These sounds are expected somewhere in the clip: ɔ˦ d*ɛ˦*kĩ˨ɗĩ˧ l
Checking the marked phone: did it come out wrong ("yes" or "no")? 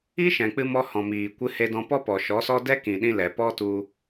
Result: no